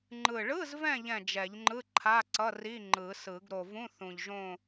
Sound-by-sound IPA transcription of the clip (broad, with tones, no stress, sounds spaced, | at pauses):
ŋ͡ǃ ɯ˨˩ ɭ ɯ˧˥˧ z v ɛ̃˦˨ ʎ ɛ̃˦˨ d͡ʒ ɛ˨˩˦ ʎ ŋ͡ǃ ɯ˧˥˧ ǃʰ a˧˥˧ ǀ ʌ˧˥˧ r i˧˥˧ ŋ͡ǃ ɯ˨˩˦ s ɯ˨˩˦ ɡ ɾ o˨˩ v ũ˧˥˧ θ ũ˨˩ ʎ ʒ õ˦˨